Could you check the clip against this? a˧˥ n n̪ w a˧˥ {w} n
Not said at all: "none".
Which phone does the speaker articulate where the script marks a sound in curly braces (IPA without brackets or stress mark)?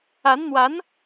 none